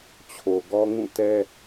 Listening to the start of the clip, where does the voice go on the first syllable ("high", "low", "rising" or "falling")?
low